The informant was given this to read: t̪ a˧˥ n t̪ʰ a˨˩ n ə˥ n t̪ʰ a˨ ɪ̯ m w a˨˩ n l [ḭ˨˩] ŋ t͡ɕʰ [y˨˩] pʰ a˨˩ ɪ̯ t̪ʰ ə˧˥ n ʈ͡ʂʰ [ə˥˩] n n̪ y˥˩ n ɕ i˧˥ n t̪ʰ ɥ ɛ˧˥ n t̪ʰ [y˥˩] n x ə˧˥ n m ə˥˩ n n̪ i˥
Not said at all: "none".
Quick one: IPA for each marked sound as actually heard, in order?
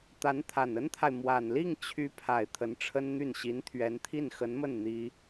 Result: i˥˩, y˧˥, ə˥, i˥˩

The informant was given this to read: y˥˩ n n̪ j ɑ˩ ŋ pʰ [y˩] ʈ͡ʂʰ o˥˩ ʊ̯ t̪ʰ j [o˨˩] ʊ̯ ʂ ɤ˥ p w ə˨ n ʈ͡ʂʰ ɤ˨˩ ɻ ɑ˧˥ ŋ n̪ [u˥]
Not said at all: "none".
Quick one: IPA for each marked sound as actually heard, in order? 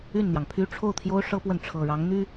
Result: y˥, o˥, y˥

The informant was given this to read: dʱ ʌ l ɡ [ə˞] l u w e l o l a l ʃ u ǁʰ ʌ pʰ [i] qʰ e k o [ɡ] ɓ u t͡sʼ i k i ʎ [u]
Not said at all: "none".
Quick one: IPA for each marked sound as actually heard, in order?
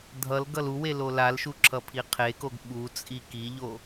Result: ʌ, i, ɡ, o

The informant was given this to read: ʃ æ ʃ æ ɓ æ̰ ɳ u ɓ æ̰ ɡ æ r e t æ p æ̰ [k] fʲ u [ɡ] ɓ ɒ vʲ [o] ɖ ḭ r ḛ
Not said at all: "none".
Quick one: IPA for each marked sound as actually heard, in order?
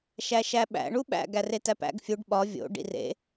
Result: ɡ, ɖ, o̰

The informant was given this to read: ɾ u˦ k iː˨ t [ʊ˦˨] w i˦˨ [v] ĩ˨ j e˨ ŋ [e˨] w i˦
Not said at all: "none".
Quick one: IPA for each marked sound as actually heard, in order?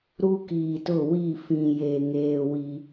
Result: ʊ˦˨, f, eː˨

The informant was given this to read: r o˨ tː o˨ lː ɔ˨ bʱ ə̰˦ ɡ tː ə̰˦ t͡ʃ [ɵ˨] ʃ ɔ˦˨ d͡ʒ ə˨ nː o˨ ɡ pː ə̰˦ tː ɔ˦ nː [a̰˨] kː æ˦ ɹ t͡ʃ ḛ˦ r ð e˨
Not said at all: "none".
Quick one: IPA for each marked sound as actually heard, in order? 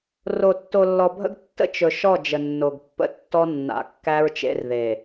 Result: ɵ˨, a̰˨

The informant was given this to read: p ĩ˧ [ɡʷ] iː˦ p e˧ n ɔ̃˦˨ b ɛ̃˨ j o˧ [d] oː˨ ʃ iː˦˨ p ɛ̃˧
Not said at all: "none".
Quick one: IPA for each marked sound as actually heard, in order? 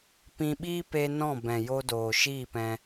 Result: ɓ, d

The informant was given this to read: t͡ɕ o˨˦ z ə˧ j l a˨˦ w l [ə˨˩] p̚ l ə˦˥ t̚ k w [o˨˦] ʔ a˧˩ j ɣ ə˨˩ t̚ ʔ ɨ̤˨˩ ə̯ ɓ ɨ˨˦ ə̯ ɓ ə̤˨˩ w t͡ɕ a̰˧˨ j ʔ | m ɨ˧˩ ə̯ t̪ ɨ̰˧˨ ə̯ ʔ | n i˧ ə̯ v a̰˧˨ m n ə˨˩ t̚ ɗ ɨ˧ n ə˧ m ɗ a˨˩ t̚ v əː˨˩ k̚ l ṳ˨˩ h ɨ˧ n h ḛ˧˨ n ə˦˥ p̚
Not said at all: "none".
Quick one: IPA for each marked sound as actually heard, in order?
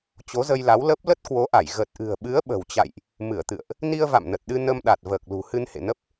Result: ə˦˥, o˨˦

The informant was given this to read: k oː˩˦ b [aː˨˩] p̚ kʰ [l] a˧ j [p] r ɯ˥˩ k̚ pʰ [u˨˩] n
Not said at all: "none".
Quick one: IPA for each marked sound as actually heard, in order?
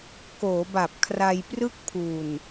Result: a˨˩, r, p, u˨˩

